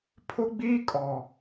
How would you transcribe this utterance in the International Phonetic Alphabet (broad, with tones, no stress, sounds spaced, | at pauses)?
pʰ ʊ˦ ɡ͡b iː˦ kʼ ɔ˨